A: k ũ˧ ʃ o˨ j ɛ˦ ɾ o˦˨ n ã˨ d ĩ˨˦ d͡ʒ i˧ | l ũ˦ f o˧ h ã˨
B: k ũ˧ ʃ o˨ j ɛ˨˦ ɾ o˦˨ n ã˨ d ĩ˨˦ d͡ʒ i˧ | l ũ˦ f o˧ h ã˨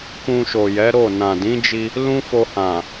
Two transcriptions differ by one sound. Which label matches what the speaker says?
B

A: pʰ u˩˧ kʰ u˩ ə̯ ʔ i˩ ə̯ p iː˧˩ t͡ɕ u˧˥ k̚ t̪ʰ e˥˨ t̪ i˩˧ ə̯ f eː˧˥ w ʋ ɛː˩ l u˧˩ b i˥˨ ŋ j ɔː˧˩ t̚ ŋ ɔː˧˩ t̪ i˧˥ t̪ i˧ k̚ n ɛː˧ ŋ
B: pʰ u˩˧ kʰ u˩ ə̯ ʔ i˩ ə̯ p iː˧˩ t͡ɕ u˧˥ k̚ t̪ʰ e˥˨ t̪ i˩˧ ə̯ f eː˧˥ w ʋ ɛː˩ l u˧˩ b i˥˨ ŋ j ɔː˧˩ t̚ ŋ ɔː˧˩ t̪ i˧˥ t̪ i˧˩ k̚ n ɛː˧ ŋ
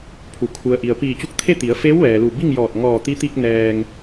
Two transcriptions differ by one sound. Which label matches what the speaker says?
A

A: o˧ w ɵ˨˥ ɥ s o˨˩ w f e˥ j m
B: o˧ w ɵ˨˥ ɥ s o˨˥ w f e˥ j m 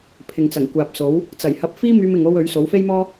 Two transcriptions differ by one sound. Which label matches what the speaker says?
B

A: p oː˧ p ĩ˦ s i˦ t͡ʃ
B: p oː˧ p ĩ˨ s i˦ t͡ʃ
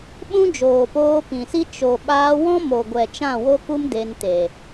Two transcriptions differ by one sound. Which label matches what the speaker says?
B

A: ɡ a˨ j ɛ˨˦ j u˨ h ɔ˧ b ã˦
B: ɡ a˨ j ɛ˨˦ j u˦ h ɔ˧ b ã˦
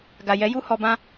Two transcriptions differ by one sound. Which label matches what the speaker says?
B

